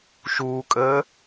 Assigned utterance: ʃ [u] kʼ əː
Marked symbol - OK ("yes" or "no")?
no